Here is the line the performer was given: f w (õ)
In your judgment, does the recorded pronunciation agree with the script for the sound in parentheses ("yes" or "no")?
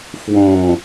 yes